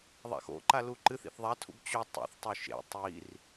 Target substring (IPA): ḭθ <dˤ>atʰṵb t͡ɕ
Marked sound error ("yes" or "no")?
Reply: yes